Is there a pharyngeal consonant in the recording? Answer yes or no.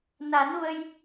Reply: no